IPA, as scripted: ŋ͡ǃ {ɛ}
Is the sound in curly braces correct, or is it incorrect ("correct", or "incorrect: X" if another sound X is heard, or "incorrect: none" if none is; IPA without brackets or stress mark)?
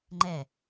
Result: correct